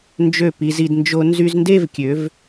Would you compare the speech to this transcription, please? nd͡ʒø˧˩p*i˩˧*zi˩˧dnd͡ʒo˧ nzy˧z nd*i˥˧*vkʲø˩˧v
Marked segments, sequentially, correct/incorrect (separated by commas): correct, incorrect